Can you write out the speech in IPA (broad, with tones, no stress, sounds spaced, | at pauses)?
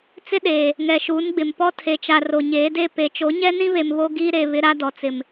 t͡s ɪ˦ ɗ eː˨ | ŋ ɛ˨ ʃ uː˨˦ n ɡ͡b ɪ˨ m p ɔ˦ tʰ e˨ t͡ʃ a˨ r o˨ ɲ eː˨˦ d e˦˨ p e˨ t͡ʃ o˨˦ ɲ ɛ˦ n ĩ˦ β e˨ m β o˦ ɡ iː˦ ɾ e˨ β ɪ˦ ɾ a˦ d ɔ˨ t͡s ɪ˨ m